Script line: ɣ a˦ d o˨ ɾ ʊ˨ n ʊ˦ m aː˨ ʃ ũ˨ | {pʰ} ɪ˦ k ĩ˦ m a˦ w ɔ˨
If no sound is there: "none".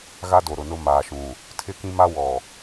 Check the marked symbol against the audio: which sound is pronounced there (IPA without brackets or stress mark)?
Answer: tʰ